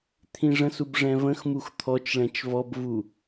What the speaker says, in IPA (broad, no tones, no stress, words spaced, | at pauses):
t̪ʰĩʐə̃sub ʐɛ̃və̃xmux t̪ʰɔt͡ʃɭɛ̃t͡ʃ vɔbvu